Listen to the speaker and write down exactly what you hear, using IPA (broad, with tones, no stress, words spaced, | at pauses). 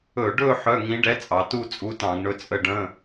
ɵ˧˩˧ɖɵ˥˧ ħœ˧˥˧ŋĩ˧˥ ɖɛ˧˥t͡sʼɑ˩˧tu˥˧ t͡sʼu˧˥tɑ̃˧˩˧ɡ ɳɵ˧˥t͡sʼə˥˧ ɖə̃˧˥˧